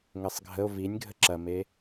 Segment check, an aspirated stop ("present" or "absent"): absent